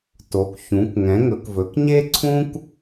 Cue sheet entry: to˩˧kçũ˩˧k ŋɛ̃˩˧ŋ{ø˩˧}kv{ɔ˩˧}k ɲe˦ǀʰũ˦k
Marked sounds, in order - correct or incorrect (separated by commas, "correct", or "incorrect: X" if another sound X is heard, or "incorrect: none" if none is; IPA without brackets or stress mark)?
incorrect: ɵ˩˧, incorrect: ɵ˩˧